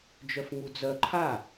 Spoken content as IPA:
d͡ʒœfŋud͡zœ ǃʰa

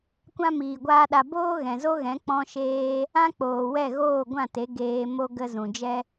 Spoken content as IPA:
kʷã˦miː˨ɡʷaː˦ɗa˧ boː˦ɣɛ̃˨zo˦ɣɛ̃˨˦ k͡pɔ̃˧ʃeː˧ | ã˦k͡poː˨ wɛ˦˨ɣoː˦˨ɡʷã˦˨te˨˦ ɡeː˧ mo˦ ɡə˦zũ˨ d͡ʒɛ˦

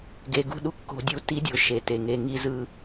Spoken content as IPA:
ɡe˧ɡṳ˦ ɗu˦kːo̤˦dʲu˦ ti˦dʲo˧ ʃe˨te˨ŋe˧ ŋi˧zɯ˧

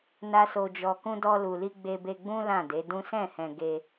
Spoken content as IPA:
na˦so˧d͡ʒɔ˧kũ˦ dɔ˧lu˨li˧ ɡ͡be˧be˧ɡ͡bũ˦ lã˦˨de˨˦dũ˦ sɛ̃˦˨hɛ̃˨ ɡe˧

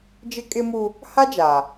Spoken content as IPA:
d͡ʒɪ˦kʼɪ˦mu˦ | ha˦d͡ʒaː˨

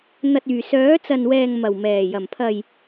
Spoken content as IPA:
n̪ɐ˨t̚yː˨˩ sœː˨˥t͡sɐ˨nwɛː˨ŋ mɐ˨˩wmɛː˨˩jɐ˨˩mpʰɐ˨j

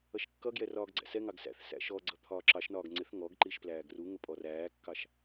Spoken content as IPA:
ʌʃkːʌɡjɛ rɒːɡɡ͡ǀæ̰sɛŋɑɡ sæ̰θ sæ̰ʃɔɡ͡ǀʌ t̪ʰɒːǁɑʃnɒːɡ ŋ͡ǀɪθ ŋɔɡǃiʃ plæːɡruŋə pʼɔræːkːɑʃ

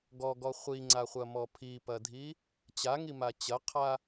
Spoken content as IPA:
ɡɔɡɔ χʷiŋ͡ǀaχʷɐmɔ pʰipɐdʱi | t͡ɕaŋima t͡ɕɐqʰa

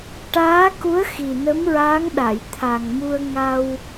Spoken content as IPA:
ʈaː˧˥ku˧˥ə̯xi˨˩ nə˧˥mɹaː˧˥ŋɗa˨˩˨j t̪ʰa˨˩ŋmu˧ə̯ ŋa˧w

